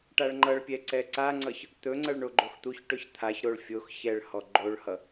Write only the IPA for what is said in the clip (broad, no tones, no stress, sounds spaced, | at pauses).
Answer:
ʈ a ɭ ŋ͡ǃ ʌ ɭ pʲ ɛ ǀ ɛ ǀ a ŋ͡ǀ ʌ ç | t̪ ɵ ŋ͡ǀ ʌ ɭ ɳ o ɡ͡ǃ o x t̪ u ç ʈ ɵ ç t̪ʰ a ç ɾ o ɭ fʲ o x ç ɛ ɭ h ɔ ɡ͡ǃ o ɭ h ʌ